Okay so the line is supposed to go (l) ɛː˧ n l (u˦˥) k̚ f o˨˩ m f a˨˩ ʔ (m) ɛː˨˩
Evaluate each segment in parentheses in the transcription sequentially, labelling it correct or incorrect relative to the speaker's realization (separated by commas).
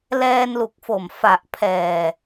correct, incorrect, incorrect